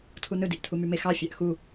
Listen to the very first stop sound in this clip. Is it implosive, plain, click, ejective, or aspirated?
aspirated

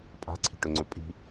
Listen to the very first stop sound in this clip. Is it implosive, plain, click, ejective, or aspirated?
ejective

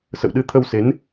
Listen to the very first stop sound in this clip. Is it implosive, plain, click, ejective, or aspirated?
implosive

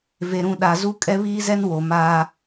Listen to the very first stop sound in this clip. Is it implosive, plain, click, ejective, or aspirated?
implosive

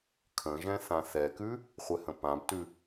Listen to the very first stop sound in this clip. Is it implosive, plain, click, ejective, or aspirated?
aspirated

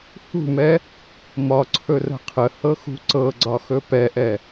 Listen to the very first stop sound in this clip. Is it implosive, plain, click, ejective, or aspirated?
click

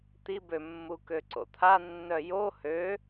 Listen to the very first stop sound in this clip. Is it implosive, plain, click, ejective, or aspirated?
plain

